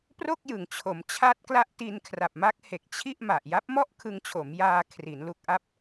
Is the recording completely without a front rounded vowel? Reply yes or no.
yes